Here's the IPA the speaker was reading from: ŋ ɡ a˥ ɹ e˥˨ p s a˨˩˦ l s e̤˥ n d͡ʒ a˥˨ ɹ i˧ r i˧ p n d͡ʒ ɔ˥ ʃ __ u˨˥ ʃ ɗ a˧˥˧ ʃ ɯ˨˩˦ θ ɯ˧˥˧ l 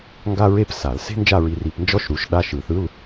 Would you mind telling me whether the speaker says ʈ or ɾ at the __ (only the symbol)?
ɾ